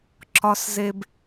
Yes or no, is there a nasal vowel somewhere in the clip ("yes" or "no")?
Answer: no